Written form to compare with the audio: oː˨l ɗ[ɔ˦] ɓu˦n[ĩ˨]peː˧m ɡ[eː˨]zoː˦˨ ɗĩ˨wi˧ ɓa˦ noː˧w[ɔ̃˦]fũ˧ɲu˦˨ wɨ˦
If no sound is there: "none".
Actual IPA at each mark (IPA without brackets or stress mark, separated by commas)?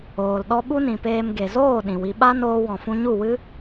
ɔ˦, ĩ˨, e˨, ɔ̃˨